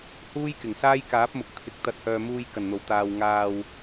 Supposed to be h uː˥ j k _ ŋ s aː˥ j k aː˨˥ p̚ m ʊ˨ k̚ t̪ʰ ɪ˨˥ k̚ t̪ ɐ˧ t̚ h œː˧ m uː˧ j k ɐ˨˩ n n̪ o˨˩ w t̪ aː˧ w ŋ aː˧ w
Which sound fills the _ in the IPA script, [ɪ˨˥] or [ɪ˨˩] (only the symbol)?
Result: ɪ˨˩